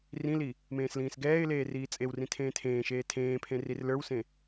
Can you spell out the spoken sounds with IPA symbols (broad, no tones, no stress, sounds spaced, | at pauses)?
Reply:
r ĩ l i | m ẽː s l ĩː s ɡ ɛː ɪ̯ l eː r iː t͡sʼ e w r ĩ tʰ ẽː tʰ ẽː ʃ eː tʰ ẽː pʰ ẽ r i r l ə˞ w s ẽ